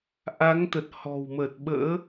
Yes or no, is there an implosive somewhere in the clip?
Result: yes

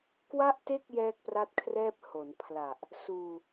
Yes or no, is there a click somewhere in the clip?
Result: no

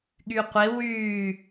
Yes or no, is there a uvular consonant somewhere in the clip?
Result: yes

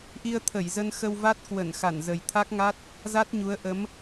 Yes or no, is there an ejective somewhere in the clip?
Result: no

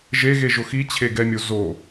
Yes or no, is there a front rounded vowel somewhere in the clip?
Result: no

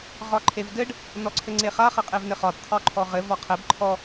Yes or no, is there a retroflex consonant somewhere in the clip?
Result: yes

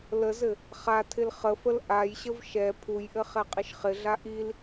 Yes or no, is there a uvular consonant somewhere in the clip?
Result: yes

